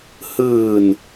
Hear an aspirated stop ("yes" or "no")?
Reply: no